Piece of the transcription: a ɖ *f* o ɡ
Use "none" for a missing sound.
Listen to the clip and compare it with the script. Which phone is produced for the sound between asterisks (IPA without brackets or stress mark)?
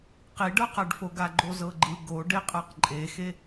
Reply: f